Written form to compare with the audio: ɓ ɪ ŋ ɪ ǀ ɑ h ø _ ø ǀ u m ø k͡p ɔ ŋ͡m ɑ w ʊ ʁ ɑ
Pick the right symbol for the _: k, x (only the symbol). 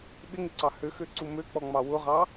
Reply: x